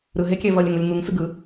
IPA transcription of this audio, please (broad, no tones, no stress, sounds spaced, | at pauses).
ɾ ɯ ɦ e kʲ ɛ v ʌ lʲ ɛ ŋ u lʲ ŋ u ŋ s ɯ ɡ ɯ